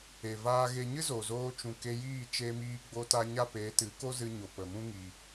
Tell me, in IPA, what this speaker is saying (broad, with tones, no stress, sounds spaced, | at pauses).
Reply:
e˨ v aː˧ ɣ e˧ ɲ ɨ˦ z o˨ z oː˧ t͡ʃ ũ˨ k e˧ j iː˦˨ t͡ʃ e˧ m iː˧ ɡ͡b o˧ t a˧ ɲ a˦ p e˨˦ t ɨ˨˦ k o˦ z ɨ˧ ɲ o˨ p ə˨ m ũ˦ ŋ i˧